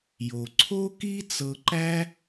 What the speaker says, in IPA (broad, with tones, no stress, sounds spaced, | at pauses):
j o˩ ǀʰ o˥ k i˥ t͡s ɤ˧ ǃ æ˥